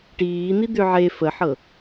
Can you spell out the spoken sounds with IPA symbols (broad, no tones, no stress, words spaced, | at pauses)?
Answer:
ʈiːn̪i d̪ʏ ʕe fəħɤ